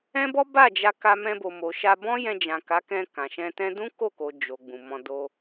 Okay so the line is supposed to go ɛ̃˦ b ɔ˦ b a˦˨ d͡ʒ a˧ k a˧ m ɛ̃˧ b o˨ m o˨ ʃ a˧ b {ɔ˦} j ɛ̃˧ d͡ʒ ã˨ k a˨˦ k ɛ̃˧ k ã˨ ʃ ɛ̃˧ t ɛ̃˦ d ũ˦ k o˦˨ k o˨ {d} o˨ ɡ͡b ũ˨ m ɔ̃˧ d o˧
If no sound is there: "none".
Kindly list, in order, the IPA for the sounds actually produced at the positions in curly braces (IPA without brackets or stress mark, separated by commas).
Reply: ɔ̃˦, d͡ʒ